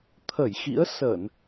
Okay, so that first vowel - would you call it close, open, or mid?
mid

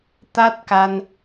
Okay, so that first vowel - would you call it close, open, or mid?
open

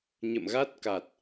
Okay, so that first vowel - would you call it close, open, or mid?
mid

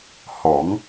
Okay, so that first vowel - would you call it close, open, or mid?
mid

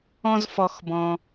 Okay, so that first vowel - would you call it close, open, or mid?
mid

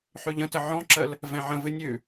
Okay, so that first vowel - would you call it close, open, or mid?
close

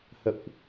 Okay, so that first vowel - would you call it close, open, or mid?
mid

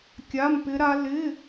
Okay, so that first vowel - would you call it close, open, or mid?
open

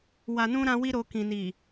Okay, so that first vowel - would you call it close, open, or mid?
open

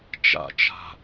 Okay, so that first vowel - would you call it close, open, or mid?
open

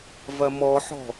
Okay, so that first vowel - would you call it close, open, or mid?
open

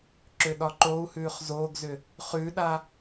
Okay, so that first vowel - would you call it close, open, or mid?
close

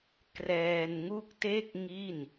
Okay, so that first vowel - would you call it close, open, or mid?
mid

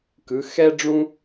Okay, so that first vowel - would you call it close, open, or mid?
close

